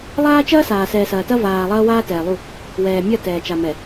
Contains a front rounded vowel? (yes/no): no